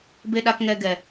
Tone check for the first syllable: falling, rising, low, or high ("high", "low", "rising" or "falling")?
low